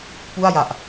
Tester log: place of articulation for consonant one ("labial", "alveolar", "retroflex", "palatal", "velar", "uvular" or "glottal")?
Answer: labial